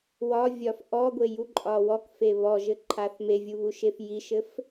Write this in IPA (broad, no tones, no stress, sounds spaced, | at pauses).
w ɒ vʲ ɒ f ʔ ɔ ɡʷ e j u ǃʼ ɒ w ɔ k f e β ɔ ʒ ɘ ǃʰ a θ m e vʲ u β u ʃ e f j i ʃ ɘ f